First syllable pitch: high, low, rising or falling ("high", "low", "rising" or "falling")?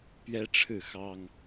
high